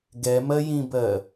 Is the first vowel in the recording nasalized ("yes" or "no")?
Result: no